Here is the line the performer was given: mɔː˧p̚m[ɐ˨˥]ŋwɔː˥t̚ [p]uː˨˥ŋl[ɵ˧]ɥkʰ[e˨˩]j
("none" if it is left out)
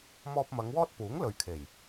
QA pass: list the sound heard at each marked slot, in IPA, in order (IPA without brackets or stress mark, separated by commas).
ɐ˨˧, p, ɵ˨, e˨˩